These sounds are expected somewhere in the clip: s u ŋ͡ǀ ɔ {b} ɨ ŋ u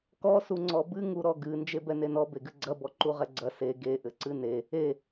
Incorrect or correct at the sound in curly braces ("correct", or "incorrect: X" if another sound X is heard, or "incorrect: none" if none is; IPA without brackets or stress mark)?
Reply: correct